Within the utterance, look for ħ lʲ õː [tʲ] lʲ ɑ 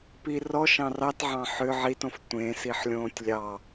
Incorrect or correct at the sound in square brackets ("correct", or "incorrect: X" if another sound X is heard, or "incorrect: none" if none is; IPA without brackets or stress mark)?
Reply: correct